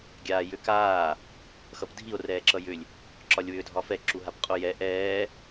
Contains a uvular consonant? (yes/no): yes